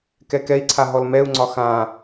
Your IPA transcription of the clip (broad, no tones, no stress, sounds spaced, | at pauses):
k ɛ k ɛ i̯ ǀʰ a ɦ ɔ l m ɛ u̯ ŋ͡ǀ ɒ x ã